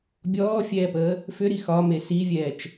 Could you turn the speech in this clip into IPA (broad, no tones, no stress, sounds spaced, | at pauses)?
bʲ ɔː fʲ ɛː p əː | f ʏ ɾ i x ɒ m e s i vʲ ɛː t͡ʃ